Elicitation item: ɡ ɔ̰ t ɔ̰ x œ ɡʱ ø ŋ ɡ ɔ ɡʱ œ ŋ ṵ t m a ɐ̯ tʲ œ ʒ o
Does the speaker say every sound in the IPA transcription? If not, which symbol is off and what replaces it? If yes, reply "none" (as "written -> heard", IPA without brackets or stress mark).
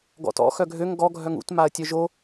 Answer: none